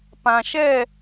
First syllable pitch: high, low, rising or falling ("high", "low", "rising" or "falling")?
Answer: low